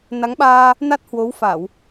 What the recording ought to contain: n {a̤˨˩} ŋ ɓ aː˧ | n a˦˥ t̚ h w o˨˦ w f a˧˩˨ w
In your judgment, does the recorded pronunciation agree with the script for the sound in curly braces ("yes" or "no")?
no